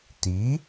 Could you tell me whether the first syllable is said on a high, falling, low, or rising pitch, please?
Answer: rising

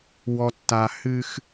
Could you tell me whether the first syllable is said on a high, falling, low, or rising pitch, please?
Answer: low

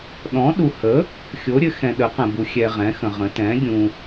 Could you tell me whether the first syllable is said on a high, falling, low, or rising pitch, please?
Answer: rising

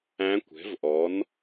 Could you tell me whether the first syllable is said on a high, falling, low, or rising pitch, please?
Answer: rising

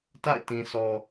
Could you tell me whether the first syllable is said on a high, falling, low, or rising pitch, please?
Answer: falling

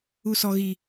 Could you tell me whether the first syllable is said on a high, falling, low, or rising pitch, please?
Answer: high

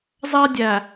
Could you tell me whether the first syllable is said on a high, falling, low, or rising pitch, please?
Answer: high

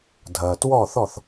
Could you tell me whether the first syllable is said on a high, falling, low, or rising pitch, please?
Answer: low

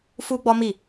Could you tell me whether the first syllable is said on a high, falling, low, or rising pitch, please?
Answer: high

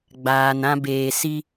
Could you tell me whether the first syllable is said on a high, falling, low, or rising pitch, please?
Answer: low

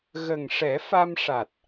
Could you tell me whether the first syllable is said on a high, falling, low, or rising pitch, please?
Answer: low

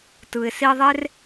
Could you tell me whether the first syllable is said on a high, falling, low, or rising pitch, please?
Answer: low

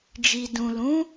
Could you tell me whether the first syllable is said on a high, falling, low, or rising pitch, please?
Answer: low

